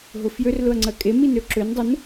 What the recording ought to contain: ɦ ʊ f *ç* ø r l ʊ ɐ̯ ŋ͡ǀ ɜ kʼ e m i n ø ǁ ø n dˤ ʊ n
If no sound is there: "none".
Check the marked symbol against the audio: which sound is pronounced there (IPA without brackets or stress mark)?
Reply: j